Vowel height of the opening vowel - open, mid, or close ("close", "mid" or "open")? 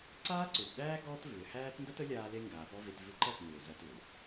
open